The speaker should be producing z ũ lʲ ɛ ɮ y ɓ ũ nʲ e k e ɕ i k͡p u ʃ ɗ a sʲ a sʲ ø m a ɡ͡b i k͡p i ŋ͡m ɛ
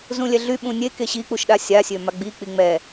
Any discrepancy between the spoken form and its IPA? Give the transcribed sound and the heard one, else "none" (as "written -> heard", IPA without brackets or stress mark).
none